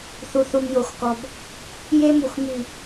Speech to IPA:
θu˨θu˨mjo˨xkɔ˨b | je˦mu˨x my˨

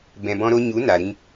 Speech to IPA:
bɛ̃˧bɔ̃˦ɾo˦ ɲu˨˦ na˨ ɾĩ˧

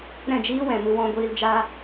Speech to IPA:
ɾɛ̃˦˨d͡ʒiː˦wɛ̃˨ mɨ˧wɔ̃˧ɡʷiː˧l d͡ʒaː˦

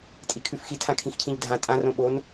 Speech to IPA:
tʼikʰʉfxitʰã kʰĩxcʰĩʎdʱã tʼãrõ ɓon

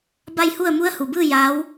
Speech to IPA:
ba˥˨jhu˥˨ə̯ mu˧˥ə̯hu˩bɯː˥˨ ja˧˥w

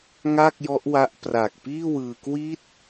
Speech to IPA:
ŋa˥˩k̚jɔ˦˥ʔwa˦˥ʔ pra˨˩k̚piː˥˩wɯː˧ kwi˦˥t̚

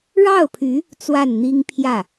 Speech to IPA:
ɻɑ˥˩ʊ̯pʰy˧˥ | t͡swa˥˩nn̪i˥ŋpʰjä˥˩

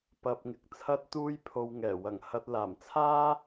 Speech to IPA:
pɐ˧p̚ŋɪ˨k̚t͡sʰɐ˥t̚t̪uː˥j pʰo˧wŋɛː˨˩ wɐ˨˩ŋhɐ˧t̚laː˨˩m t͡sʰaː˥

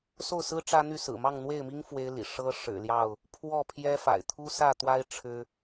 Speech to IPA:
so˥˨ʊ̯sɹ̩˦ ʈ͡ʂä˦n̪y˥˨ sɹ̩˨˩mɑ˥˨ŋn̪we˥˨ɪ̯mi˦ŋ fwe˦ɪ̯lḭ˨˩ ʂɤ˦ ʂɻ̩˨˩ljɑ˥˨ʊ̯ | pʰwɔ˥˨pʰjɛ˦fa̰˨˩ɪ̯ t̪ʰu˦sä˥˨t̪wa˦ɪ̯ ʈ͡ʂʰɻ̩˦

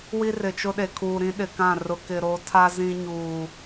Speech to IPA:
wi˦rɪ˨t͡ʃʊ˦ɗe˨ kʰuː˨ɾĩ˦ɗɪ˨kã˦˨ rʊ˨kɪ˨ɾo˨˦tʰa˦ zĩ˦ɲuː˨

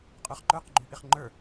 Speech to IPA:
qʼə˞χǃə˞q ɡ͡ǃyʔɪχŋ͡ǃə˞

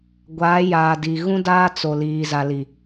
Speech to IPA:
ɡʷaː˨˦jaː˨ di˨ ɣũ˦daː˦ t͡so˨ liː˨za˨li˨

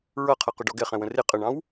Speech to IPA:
ɹʌqʰʌqʊɖɔ ɡɛχɛ̃wə̃ rɪ qʼəɳɑ̃w

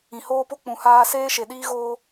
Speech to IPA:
ĩ˨hoː˧po˧ k͡pũ˨haː˧ seː˧ ʃe˨ɗiː˧ ɣoː˦

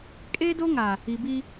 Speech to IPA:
kʼeː˦do˦ ŋa˨ | i˨bi˦

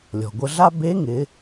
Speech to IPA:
lʲɔ̤˩ɡʷə˧ɮa˥ be˧˥ŋɪ˩˧

